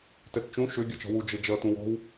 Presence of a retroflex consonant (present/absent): absent